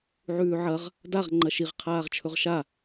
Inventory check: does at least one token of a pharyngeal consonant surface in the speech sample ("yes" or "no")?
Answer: yes